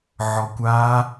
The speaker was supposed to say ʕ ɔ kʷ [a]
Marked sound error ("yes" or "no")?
yes